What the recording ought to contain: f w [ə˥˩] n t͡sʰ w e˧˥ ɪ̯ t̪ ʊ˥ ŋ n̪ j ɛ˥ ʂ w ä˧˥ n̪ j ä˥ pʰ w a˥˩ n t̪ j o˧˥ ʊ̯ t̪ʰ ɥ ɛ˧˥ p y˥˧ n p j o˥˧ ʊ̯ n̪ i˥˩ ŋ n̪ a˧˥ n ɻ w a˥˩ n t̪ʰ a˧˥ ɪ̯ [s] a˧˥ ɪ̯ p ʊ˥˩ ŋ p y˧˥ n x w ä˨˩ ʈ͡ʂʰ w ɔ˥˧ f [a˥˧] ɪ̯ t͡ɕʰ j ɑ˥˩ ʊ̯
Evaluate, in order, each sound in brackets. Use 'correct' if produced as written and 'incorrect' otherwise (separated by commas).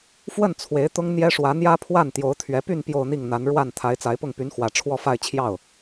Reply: correct, incorrect, correct